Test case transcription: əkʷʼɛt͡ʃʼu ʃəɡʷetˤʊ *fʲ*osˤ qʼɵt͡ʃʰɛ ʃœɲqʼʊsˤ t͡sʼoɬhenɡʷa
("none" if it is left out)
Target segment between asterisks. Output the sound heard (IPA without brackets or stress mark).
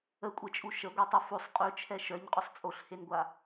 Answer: f